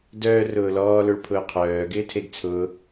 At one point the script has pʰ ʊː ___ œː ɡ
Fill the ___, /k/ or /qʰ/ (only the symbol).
qʰ